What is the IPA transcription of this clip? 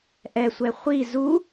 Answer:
ʔ ɛ sʷ ɛ χʷ i z u

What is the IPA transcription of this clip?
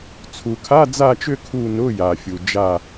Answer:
t͡sʰ u˨˩ kʰ a˧˥˧ d͡z a˦˨ t͡ʃ ʏ˦˨ kʰ u˦˨ n ʊ˧˥˧ j a˨˩ fʲ u˨˩ d͡ʒ a˦˨

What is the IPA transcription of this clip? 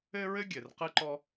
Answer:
ɘ˥ ɹ ɘ˥ ɡʲ ɘ˩ r q ɨ˥ ǃ ɔ˥

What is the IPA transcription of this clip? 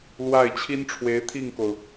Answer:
l w a˥˩ ɪ̯ t͡ɕʰ i˥ n ʈ͡ʂʰ w e˧˥ ɪ̯ t̪ʰ i˥˩ ŋ k o˩ ʊ̯

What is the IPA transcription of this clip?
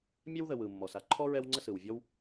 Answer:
mʲ ɛ˥ w ð ə˨ w ɯ˩ mː ɔ˩ s a˦ ǃʰ ɔ˥ ɹ ɛ˦ w ŋ͡ǀ ə˦ s ɯ˩ w vʲ ɔ˦ w

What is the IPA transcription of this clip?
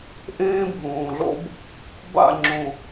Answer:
ʔ ẽː˦ bʱ õː˨ ɮ o̰˦ b | b a̰˦˨ ŋ͡ǁ õ˨

